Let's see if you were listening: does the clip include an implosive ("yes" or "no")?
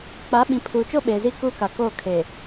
yes